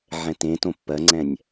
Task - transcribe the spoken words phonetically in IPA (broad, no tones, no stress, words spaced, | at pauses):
ʕɛ̃tẽtõ pːɜŋ͡ǀɛ̃nʲ